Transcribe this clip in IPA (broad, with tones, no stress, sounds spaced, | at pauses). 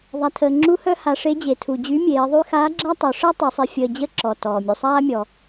ðˤ a˩ tʰ əː˩ ŋ͡ǁ u˧˥ h œ˥ h a˩˧ ʂ e˧˥ d͡ʑ e˩ tʰ u˩ d͡ʑ y˧˥ mʲ eː˩˧ ðˤ y˥ x aː˧˥ ɡ͡ǁ a˥ tˤ œ˩˧ ʂ ɛ˥ tˤ y˩˧ sˤ e˧ fʲ əː˧ d͡ʑ ə˥ ǁ ɔ˩ t ɔː˩ mʲ u˩ sˤ aː˥ mʲ ɔ˩